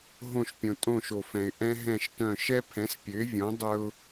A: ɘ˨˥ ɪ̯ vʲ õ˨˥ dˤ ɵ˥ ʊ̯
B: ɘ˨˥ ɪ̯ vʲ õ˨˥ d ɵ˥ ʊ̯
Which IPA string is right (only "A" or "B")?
A